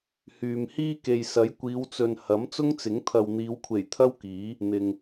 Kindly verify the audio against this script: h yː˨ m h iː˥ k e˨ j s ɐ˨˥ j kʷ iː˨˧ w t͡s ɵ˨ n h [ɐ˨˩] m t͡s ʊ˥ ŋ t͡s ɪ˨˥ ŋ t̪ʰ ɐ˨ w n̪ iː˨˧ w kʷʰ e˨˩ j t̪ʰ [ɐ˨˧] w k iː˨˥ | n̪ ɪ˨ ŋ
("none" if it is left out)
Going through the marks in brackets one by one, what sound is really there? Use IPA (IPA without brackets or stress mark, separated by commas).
ɐ˨˥, ɐ˥